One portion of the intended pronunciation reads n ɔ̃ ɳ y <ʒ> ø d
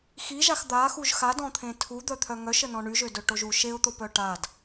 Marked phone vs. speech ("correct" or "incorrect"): correct